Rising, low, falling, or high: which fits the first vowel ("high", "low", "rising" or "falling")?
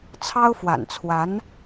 high